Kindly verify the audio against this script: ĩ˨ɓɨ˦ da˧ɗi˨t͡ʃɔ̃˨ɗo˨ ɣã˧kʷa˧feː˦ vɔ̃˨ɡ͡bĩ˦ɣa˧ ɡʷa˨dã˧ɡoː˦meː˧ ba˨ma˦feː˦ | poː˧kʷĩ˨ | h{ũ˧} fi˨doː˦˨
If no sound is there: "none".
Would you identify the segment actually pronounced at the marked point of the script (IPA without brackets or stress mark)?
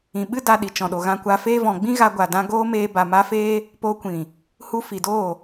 u˧